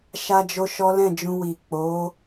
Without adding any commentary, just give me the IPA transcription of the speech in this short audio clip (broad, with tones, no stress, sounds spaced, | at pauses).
ʃ a˦ d͡ʒ o˦ ʃ ɔ˦ l ɛ̃˦˨ d͡ʒ ũ˧ w i˨ k͡p o˨˦